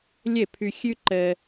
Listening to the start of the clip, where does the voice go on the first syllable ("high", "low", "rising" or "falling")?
falling